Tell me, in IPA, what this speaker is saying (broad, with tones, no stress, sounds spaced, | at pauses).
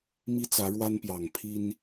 m i˦ t͡s ä˨˦ ɻ w a˦ n p j ɑ˨˩ ŋ pʰ i˦ n